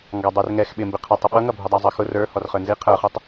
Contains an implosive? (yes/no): yes